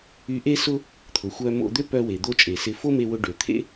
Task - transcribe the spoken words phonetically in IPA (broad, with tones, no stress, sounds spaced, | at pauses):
y˧ ʔ e˥ s ʊ˥ | t̪ʰ ʊ˩ xʷ œ˧ m o̰˧ d̪ ø˥ p œ˧ w e˩ d̪ o˧ t͡ʃʼ e˩ s ɪ˧ f o˥ m e˧ w ʊ˧ ɖ ø˩ t̪ʰ ḛ˥